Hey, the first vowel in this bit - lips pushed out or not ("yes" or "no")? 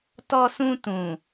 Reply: yes